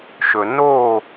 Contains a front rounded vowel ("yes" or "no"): no